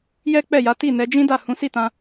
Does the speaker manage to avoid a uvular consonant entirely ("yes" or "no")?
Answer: yes